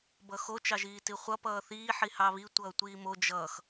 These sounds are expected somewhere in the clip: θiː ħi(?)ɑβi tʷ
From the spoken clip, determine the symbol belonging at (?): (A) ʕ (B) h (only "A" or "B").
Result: B